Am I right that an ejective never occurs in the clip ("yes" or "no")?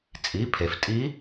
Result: no